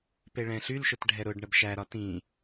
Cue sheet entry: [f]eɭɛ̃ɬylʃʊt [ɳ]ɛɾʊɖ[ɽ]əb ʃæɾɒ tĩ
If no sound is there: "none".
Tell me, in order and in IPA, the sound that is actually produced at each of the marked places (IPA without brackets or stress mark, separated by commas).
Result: p, ɖʱ, ɳ